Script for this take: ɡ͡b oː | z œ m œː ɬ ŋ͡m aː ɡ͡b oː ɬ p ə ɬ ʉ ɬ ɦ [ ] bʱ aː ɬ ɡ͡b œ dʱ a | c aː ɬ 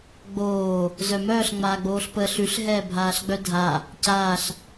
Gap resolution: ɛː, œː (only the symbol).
ɛː